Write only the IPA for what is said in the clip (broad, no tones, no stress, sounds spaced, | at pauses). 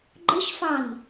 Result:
ɡ͡ǃ ə ʃ f ɑ n